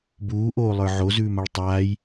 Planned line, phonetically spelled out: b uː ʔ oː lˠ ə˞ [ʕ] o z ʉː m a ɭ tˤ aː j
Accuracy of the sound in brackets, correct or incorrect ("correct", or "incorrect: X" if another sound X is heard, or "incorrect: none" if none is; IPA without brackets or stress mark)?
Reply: correct